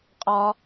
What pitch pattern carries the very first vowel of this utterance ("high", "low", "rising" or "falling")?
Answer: high